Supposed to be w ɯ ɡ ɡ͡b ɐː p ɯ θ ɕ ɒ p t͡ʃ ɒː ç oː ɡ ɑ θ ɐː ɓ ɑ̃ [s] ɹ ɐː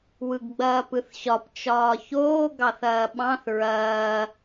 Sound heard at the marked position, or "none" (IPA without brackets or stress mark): θ